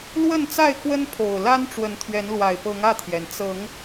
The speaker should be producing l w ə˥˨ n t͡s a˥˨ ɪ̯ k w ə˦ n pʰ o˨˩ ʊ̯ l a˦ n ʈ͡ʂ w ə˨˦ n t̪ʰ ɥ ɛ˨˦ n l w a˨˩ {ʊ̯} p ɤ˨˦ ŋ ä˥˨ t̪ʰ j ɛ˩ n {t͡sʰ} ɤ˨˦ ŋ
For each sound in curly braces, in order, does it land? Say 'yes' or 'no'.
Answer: no, no

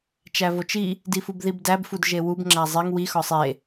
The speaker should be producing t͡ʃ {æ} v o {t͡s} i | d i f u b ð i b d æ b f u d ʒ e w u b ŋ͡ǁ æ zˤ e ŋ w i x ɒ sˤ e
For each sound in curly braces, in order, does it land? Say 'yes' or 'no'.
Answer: yes, no

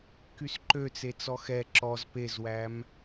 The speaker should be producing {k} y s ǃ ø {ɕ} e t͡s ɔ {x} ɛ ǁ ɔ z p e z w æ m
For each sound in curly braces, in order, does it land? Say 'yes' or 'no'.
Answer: yes, no, yes

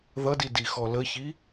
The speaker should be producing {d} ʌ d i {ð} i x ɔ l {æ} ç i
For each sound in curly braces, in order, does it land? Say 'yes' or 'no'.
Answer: no, no, no

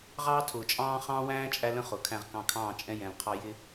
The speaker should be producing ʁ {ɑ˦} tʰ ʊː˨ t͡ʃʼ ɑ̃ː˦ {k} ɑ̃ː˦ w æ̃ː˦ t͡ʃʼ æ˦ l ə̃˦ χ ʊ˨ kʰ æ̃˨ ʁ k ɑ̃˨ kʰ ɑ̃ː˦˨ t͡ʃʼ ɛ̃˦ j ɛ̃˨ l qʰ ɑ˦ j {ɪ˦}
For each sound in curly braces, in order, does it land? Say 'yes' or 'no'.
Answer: no, no, yes

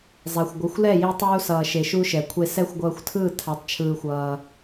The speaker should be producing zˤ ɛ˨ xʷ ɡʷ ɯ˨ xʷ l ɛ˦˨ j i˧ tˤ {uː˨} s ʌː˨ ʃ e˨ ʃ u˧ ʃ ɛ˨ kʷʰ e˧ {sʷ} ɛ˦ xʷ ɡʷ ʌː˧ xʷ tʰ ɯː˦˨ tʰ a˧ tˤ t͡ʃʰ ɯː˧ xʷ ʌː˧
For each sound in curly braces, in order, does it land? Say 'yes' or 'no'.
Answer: no, no

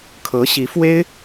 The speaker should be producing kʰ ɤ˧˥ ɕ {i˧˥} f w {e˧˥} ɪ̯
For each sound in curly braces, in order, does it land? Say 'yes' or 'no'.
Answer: yes, no

